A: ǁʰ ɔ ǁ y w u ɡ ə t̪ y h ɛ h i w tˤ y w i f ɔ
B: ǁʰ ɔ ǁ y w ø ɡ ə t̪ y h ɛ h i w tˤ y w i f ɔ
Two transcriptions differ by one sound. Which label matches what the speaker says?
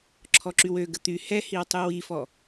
B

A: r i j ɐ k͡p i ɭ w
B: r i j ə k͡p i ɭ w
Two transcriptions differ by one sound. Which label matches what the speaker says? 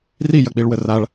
A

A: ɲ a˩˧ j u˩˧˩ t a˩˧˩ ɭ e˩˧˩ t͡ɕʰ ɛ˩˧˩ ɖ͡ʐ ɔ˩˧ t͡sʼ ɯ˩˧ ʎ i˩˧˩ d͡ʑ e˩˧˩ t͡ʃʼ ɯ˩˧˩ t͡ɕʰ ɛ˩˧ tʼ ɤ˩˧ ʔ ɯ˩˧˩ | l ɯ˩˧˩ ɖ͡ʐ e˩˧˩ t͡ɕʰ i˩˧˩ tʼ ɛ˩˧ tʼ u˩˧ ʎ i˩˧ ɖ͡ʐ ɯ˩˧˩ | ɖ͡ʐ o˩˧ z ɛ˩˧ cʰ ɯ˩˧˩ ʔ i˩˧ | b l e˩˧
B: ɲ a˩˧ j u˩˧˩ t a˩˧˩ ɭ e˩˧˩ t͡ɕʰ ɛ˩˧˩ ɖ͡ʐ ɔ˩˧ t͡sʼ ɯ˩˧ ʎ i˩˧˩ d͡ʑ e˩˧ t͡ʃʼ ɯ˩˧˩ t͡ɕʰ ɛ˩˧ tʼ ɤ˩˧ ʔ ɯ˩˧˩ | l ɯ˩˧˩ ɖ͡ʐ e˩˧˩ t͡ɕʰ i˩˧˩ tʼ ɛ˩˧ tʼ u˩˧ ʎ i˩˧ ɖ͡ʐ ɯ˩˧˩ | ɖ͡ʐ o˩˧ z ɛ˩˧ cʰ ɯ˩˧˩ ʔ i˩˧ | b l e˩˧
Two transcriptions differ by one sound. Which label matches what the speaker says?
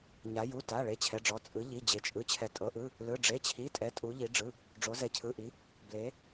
B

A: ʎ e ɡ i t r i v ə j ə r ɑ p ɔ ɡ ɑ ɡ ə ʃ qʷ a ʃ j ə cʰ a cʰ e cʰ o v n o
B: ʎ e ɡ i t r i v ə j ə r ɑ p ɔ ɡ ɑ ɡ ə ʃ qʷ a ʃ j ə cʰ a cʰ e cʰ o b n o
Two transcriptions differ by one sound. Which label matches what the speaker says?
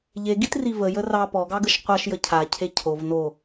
A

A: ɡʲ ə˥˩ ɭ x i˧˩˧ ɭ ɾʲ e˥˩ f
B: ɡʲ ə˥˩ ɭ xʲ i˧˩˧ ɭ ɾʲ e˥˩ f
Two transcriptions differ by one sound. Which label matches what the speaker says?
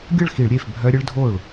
A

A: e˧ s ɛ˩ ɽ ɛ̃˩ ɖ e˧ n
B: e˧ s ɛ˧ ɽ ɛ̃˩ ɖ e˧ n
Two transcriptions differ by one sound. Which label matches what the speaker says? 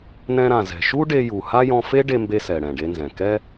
A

